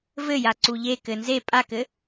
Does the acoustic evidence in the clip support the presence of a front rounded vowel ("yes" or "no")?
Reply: no